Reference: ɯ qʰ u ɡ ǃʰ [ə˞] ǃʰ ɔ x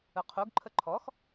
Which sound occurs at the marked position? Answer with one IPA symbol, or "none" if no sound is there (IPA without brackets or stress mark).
ə